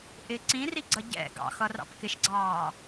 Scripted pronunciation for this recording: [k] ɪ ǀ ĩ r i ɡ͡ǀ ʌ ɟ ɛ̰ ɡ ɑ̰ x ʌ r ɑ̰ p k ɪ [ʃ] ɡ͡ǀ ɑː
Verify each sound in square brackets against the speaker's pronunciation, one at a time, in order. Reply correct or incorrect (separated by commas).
incorrect, correct